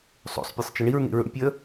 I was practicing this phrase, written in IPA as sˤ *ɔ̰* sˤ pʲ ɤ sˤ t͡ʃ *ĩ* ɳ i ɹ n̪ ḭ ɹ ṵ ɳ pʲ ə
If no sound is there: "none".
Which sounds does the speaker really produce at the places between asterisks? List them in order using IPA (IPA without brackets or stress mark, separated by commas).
o̰, i